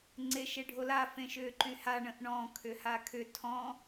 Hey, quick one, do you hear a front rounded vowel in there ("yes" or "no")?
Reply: yes